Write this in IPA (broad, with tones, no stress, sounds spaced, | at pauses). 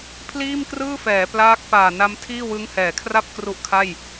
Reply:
pʰ l iː˥˩ m k r ɯː˥˩ f ɛː˩˦ p l aː˦˥ k̚ p aː˨˩ n a˦˥ m tʰ iː˥˩ w ɯ˦˥ ŋ h ɛː˩˦ kʰ r a˥˩ p̚ k r u˦˥ ʔ kʰ a˥˩ j